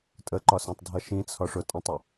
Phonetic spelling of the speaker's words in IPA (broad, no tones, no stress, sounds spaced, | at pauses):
tʼ ə ǃ ɒ s æ̃ tˤ dʱ ʌ ʃ ĩ t͡sʰ ɒ ʂ ʊ tʼ ə̃ tˤ ə